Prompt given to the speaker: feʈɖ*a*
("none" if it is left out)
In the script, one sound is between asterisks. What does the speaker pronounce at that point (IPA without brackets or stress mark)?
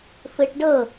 ə